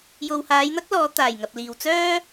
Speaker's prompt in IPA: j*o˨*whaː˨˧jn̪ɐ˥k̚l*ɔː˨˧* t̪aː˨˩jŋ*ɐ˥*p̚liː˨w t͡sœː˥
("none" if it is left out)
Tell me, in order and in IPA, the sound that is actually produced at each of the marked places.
o˨, ɔː˨˧, ɐ˨

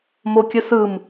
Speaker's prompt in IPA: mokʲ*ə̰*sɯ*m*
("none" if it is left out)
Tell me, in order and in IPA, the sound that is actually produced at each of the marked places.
ə, m

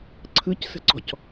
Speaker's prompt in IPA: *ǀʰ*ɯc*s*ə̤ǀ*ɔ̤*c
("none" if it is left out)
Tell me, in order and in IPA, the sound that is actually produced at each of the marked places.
ǀʰ, s, ɔ̤

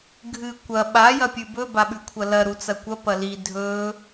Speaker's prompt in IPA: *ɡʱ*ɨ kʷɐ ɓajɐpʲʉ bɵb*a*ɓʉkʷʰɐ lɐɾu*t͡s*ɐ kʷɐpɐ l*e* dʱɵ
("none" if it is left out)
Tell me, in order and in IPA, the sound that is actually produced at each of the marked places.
ɡʱ, a, t͡s, i

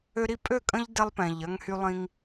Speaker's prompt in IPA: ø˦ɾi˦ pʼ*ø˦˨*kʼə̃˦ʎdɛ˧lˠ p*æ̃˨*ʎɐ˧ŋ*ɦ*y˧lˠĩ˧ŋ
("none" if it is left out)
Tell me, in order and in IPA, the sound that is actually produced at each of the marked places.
ø˦˨, ɛ̃˨, h

